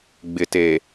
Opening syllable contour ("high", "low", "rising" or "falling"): low